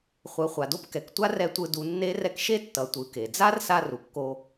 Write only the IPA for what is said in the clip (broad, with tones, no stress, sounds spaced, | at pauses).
χʷ ɯ˩˧ χʷ a˩ d o˧ p k ɛ˩ k tʷ a˥ r ɛ˧ tʷ ɯ˧ d u˩˧ nː e˧˥ r ɛ˧ k ʃ e˥ tː ʌ˩˧ tʷ ɯ˩˧ k e˩ d͡z a˥ r s a˧ r u˩ kː o˧